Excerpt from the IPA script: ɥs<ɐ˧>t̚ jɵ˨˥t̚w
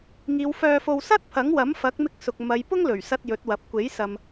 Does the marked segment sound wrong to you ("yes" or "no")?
no